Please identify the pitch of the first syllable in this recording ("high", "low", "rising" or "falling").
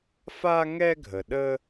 high